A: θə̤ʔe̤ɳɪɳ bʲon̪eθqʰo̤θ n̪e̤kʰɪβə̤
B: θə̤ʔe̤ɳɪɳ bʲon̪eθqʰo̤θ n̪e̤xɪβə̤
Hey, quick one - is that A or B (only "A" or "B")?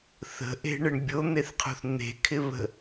A